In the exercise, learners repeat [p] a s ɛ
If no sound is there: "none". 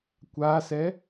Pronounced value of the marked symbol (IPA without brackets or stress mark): kʷ